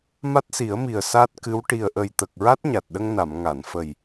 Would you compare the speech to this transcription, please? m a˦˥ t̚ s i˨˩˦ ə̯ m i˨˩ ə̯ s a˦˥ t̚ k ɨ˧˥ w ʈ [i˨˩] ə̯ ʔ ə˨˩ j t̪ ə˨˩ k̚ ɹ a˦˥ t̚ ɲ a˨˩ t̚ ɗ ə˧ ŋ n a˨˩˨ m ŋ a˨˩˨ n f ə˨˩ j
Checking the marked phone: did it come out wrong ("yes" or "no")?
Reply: no